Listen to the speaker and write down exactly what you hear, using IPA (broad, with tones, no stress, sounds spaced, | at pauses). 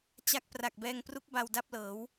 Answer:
t͡ɕ a˦˥ k̚ p r a˨˩ k̚ b ɛː˧ ŋ p r u˦˥ k̚ b a˧ w d a˥˩ p̚ l ɤː˩˦ w